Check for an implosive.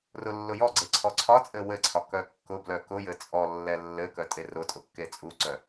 absent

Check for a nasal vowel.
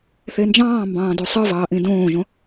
present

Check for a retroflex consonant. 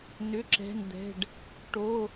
present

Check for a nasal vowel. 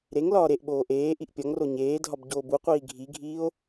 absent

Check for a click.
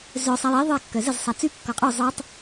absent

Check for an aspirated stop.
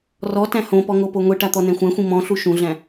absent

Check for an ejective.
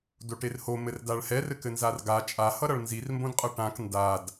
present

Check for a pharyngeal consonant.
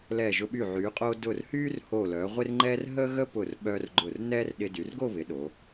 present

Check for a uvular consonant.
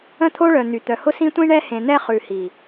present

